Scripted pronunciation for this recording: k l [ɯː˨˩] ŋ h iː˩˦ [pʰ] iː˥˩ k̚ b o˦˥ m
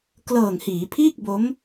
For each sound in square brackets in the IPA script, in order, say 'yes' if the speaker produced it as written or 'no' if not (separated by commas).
no, yes